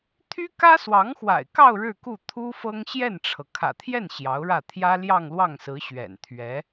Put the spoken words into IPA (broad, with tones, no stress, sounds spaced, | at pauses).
t̪ʰ y˥ k ä˥ s w ɑ˧˥ ŋ x w a̰˨˩ ɪ̯ k ɑ˥˧ ʊ̯ ɻ ɻ̩˥˧ k u˥˩ t̪ʰ u˥ f ɤ˥ ŋ ɕ j ɛ˥˩ n ʈ͡ʂʰ ɤ˩ kʰ ä̰˨˩ t̪ʰ j ɛ˥˩ n ɕ j ɑ˧˥ ʊ̯ ɻ ä˥˩ t̪ʰ j ä˥ l j ɑ˥˧ ŋ l w ɑ˥˩ ŋ s ɹ̩˧˥ ɕ ɥ ɛ̰˨˩ n t̪ʰ ɥ ɛ˧˥